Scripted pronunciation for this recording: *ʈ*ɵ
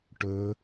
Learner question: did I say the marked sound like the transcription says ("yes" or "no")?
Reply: yes